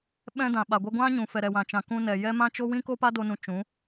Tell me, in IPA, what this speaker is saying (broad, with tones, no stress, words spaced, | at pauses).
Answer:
ɓɛ̃˧ dã˨ɓa˨ ɡʷɛ˧ɡʷã˦ɲũ˨fɛ˨ ɾɛ˨wã˨ t͡ʃã˨kũ˧ nɛ˨ jɛ˦ mã˦t͡ʃo˦ wĩ˦ko˦pa˦do˧ nũ˧t͡ʃũ˨˦